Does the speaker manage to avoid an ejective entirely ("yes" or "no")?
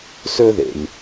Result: yes